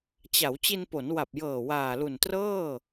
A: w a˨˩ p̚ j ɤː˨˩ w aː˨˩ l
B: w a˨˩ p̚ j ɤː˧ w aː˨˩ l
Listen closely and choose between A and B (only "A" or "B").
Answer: A